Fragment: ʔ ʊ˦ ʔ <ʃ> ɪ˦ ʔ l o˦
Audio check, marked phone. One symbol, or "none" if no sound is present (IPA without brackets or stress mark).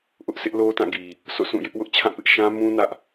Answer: s